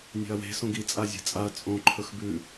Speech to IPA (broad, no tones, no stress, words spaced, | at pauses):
nʲe̤ɐ̯we̤ sõɡi t͡sʼazʲe̤t͡sʼaɐ̯ t͡sʼõ ǃʰɵxbʉ